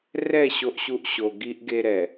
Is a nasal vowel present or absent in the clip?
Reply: absent